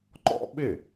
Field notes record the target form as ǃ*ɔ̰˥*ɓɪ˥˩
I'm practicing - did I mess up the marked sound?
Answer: no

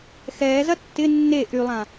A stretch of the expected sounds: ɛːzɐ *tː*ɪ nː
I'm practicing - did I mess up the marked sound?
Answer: no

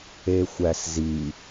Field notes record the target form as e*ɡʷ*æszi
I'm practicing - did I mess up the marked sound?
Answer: yes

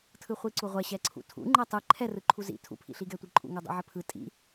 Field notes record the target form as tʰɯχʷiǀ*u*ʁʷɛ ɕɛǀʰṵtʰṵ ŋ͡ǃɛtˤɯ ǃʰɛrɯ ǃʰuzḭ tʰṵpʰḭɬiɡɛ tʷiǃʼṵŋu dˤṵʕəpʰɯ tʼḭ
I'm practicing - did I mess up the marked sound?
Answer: no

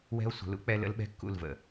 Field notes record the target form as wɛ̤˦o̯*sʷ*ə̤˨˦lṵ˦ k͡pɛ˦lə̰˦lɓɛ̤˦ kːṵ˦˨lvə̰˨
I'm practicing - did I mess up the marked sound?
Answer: no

